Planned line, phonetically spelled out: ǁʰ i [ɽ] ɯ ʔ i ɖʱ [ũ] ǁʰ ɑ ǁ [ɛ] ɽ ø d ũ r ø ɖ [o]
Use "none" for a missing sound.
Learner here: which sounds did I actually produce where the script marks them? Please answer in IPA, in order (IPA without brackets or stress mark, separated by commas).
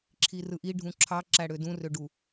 r, ũ, æ, u